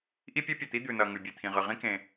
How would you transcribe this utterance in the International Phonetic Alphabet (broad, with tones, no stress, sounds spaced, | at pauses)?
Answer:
ʔ i˥ pʲ e˥ pʲ ɐ˩ t̪ i˥ d̪ ʉ˩ n ɐ˩ ŋ ʉ˩ bʲ e˩ t̪ʰ ĩ˩ ʁ ɨ˩ ʁ ĩ˥ k ẽ˩